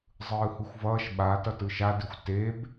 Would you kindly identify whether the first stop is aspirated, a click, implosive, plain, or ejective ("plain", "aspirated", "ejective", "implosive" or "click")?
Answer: implosive